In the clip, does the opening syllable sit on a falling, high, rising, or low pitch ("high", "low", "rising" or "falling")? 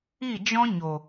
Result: falling